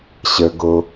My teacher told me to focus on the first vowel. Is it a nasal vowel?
no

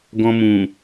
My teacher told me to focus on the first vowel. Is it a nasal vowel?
yes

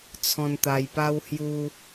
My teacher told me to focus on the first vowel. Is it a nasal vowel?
yes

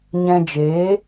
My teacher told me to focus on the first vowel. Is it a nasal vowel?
yes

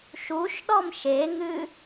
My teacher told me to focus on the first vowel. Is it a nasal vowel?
no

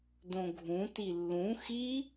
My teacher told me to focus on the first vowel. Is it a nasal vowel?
yes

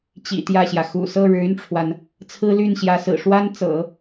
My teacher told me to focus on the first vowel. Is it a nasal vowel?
no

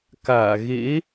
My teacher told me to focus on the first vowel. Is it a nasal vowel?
no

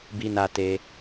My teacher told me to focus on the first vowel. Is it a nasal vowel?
no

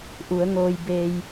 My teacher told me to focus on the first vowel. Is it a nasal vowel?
no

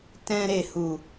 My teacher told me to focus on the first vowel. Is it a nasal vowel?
yes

